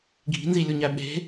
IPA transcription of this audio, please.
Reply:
ɡʱ i̤ n z i lʲ u ɲ æ ɓ e̤

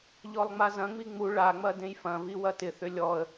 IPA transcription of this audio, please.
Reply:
ʎ ɔ lˠ ŋ͡m a z ɐ̃ ŋ͡m i ŋ͡m u ɭ a ŋ͡m ɐ d ẽ j f ɐ̃ v i w ɐ t ɪ θ ʏ lʲ ɔ ə̯

